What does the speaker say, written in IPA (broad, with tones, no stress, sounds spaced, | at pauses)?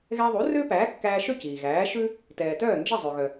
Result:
ɣ ɛ˧ ðˤ u˩˥ r ø˥ p æː˩˥ kː æː˧ ʃ ø˥˩ c iː˩ ɣ æː˩˥ ʃ ʉ˥ | t ɛː˩ t œː˥˩ n d͡ʒ e˥˩ zˤ ø˩ ɣ œ˩